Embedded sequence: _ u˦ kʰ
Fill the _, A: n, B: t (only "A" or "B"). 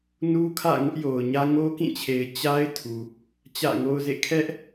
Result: A